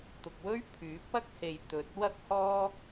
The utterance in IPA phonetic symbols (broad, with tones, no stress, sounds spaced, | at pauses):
t̪ ʊ˨ k̚ w ɵ˥ ɥ pʰ yː˨˥ p̚ ɐ˥ k̚ h e˨ j t̪ ɵ˨ t̚ w ɐ˥ k̚ h ɔː˥